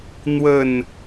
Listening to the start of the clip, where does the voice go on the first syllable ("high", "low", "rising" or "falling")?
low